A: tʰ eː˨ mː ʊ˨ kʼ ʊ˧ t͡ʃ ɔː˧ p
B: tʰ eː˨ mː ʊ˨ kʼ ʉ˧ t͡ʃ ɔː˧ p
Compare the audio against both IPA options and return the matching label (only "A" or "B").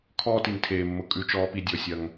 B